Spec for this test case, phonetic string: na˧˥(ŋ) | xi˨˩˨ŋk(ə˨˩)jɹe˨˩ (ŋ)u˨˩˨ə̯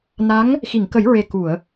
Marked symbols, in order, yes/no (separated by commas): yes, no, no